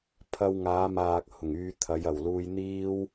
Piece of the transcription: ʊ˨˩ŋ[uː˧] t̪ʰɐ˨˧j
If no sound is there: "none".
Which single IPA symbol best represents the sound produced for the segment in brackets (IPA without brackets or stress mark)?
yː˧